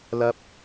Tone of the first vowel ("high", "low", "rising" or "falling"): low